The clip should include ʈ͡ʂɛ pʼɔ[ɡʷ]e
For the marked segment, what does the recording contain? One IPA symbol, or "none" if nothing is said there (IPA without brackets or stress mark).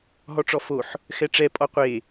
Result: qʷ